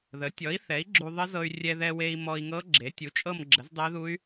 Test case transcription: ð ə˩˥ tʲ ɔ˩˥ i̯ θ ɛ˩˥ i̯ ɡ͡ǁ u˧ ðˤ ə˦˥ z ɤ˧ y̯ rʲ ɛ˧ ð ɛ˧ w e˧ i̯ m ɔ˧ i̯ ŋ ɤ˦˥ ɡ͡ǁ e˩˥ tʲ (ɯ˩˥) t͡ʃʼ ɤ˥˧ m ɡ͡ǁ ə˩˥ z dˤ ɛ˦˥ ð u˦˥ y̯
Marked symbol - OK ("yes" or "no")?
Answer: no